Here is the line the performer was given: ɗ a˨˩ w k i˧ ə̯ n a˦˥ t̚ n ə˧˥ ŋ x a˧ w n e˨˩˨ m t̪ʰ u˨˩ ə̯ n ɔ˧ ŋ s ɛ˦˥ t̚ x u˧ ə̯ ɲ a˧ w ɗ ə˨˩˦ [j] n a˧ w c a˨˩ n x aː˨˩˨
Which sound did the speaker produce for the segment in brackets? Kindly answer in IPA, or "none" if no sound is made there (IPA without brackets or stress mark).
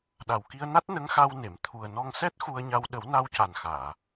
w